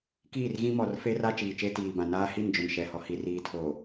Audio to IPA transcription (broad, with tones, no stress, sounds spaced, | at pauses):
k iː˦˨ r ɣ ĩ˦ m ɔ˨ r f e˦ r a˦ t͡ʃ iː˨ t͡ʃ e˦ t iː˨ b ã˨ n aː˦ h i˦˨ n d͡ʒ ʊ˨ n ʃ ɛ˨ h ɔ˨ h i˨ r iː˨ tʰ oː˨